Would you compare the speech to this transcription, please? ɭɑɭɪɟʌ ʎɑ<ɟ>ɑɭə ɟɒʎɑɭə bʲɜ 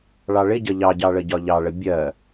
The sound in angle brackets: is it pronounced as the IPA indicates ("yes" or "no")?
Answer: yes